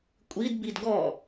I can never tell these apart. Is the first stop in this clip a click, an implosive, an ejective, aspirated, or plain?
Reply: ejective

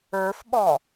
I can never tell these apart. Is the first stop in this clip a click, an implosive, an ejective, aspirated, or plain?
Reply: implosive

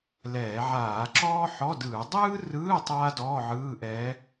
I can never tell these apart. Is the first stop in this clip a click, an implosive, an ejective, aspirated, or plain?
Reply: click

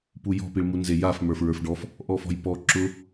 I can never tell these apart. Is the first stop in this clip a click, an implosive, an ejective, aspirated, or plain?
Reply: plain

